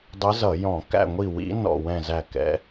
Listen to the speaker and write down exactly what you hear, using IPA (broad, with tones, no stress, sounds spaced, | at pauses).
dˤ ɪ˧˥ z ʌ˧˩˧ j ɔ̃˧˩˧ k æ̰˦˨ ŋʷ i˦˨ w ḭ˧˥ n ɔ̰˦˨ w ɛ̃˦˨ z æ˦˨ k ɛ̰˧˥